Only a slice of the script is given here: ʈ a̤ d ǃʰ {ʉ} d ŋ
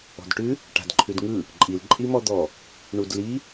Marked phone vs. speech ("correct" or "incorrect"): correct